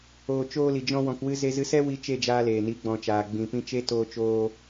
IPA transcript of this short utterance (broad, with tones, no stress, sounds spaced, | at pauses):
oː˨ t͡ʃ oː˧ l i˨ d͡ʒ ɔ̃˧ w ɔ̃˨ k w ɨ˧ z e˧ z ɨ˧ s ɛ˦ w i˧ t͡ʃ e˦˨ d͡ʒ aː˧ l eː˨ n i˨˦ ɡ͡b ɔ̃˨ t͡ʃ aː˨ ɡ͡b ĩ˨ p ĩ˧ t͡ʃ e˧ t oː˧ t͡ʃ oː˧